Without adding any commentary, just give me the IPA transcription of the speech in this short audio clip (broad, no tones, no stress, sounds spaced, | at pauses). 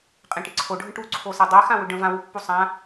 qʼ ẽ ʈ ɪ ǀʰ o ɖʱ ə̃ ʈ u ǀʰ o s e dˤ e x ã w ʏ ɖ ə̃ v ã w u pː u sˤ ã